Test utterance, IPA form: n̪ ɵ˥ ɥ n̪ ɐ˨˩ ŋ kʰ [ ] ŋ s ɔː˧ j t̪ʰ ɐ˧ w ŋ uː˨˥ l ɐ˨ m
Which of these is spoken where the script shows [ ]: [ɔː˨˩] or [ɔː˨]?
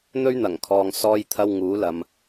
ɔː˨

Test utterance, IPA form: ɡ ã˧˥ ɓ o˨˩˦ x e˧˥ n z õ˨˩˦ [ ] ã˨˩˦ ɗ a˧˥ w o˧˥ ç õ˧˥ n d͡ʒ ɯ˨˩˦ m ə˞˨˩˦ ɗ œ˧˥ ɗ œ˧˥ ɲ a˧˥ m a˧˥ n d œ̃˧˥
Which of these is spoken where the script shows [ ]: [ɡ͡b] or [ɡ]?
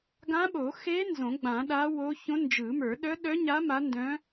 ɡ͡b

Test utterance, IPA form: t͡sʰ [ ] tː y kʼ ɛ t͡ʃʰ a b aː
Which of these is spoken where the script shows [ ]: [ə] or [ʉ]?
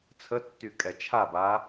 ə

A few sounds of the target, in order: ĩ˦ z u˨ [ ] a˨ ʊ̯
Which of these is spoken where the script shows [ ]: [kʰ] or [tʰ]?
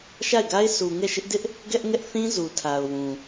tʰ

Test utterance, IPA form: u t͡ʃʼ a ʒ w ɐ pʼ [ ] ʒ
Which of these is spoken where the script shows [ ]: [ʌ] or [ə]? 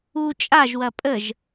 ə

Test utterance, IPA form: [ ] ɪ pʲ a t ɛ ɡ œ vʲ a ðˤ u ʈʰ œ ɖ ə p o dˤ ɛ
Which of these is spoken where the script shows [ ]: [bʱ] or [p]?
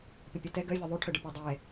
p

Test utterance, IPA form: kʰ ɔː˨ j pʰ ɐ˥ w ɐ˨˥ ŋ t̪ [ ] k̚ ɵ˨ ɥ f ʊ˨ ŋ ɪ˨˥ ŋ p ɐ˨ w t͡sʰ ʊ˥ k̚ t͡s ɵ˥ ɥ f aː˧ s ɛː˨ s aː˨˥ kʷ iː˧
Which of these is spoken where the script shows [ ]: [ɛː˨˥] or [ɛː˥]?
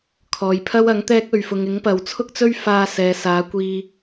ɛː˥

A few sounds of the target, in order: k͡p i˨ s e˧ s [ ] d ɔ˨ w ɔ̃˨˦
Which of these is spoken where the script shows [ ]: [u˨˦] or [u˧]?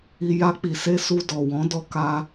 u˧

